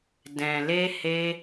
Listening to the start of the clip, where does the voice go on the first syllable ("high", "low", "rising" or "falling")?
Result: low